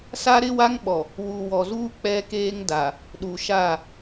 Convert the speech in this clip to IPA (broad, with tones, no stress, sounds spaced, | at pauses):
s a˦ ɾ ɪ˦ w a˦ ŋ ɓ ɔ˨ | w u˨ w ɔ˨ z uː˦ k͡p ɛ˦ k eː˦ ŋ d a˨ | ɗ u˨ ʃ a˦˨